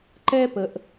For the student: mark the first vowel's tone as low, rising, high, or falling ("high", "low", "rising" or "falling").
high